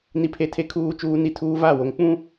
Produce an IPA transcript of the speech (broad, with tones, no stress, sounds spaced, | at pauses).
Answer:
n i˦ pʰ e˦ tʰ e˦ kʰ uː˦ t͡ʃ uː˦ n i˦ tʰ uː˦ v a˦˨ w o˨ ŋ k͡p ũ˦